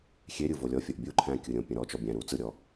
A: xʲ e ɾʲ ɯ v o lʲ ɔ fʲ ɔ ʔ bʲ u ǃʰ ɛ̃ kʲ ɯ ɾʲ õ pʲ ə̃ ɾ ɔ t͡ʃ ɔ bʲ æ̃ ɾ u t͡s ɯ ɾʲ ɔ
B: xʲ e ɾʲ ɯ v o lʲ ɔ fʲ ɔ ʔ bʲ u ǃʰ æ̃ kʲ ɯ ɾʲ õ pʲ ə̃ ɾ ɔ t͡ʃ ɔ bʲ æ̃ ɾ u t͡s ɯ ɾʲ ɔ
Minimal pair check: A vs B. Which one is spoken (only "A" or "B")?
B